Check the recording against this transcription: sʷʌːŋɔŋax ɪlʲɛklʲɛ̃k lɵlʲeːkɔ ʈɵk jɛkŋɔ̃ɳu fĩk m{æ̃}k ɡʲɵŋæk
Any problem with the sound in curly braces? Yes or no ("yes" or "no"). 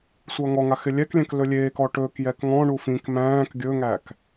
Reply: yes